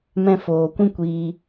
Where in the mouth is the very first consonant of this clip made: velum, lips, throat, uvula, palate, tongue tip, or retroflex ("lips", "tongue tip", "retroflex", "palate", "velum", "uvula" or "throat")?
lips